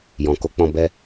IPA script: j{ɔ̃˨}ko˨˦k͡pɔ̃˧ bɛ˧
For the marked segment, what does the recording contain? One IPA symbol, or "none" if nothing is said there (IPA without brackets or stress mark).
ɔ̃˨